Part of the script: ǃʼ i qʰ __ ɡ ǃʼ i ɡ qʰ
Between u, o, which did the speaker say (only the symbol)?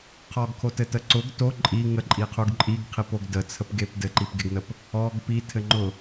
u